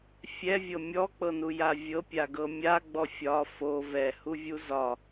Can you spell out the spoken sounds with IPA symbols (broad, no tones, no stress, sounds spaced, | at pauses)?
fʲ ɛ vʲ ɤ mʲ ɔ k͡p ɤ n u j a vʲ ɤ pʲ a ɡ ɤ mʲ a ɡ͡b ɔ fʲ ɒ f o v ɛ h u vʲ u z ɒ